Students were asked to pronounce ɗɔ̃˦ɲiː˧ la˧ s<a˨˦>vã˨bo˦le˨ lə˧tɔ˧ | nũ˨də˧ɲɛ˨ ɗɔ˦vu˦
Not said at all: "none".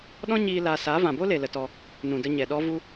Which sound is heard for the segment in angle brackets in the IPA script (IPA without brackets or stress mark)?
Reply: a˨˦